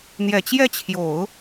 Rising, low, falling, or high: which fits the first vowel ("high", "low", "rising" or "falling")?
low